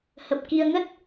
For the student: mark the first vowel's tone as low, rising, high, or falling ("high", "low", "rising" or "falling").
low